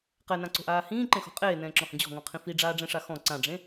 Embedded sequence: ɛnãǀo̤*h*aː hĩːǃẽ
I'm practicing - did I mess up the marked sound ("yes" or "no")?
yes